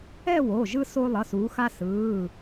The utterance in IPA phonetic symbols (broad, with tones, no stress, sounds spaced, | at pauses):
ɛ˥˧ w o˩˧˩ ʒ ɯ˧ s o˧ lˠ ʌ˩˧˩ s uː˩˧ x a˧ s ɯː˩˧˩